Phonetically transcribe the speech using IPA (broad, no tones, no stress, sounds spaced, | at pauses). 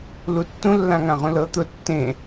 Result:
l u tː ũ lː ã ŋ ã ʁ ũ l ɤ t̪ ʊ tː ẽ